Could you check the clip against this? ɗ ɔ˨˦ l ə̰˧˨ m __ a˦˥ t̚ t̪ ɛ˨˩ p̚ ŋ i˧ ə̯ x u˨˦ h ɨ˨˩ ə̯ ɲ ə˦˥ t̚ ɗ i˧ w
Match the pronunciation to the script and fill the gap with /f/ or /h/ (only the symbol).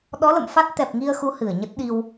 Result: f